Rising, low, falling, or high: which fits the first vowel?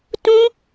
high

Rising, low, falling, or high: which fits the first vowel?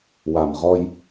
low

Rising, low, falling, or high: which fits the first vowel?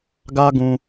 high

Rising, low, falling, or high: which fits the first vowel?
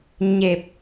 low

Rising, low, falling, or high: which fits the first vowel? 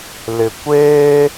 low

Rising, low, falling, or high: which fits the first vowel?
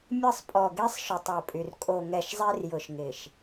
falling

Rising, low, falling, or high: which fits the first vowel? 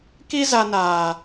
high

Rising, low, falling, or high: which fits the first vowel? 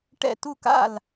falling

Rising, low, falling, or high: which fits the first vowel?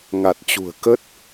low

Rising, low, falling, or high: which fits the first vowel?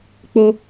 high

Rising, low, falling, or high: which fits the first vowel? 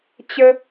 high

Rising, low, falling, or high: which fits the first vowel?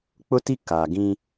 high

